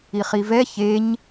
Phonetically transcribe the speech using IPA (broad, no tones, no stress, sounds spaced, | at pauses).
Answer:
i χ i v ɛ ç e ɲ